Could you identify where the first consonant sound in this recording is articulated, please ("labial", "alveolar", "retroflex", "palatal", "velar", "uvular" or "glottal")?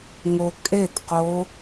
velar